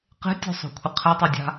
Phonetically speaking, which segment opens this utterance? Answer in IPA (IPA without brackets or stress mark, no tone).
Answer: q